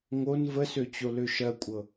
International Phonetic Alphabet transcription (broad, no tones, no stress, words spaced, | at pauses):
ŋon vəsøt͡ɕolø ʃɜkʷʼɤ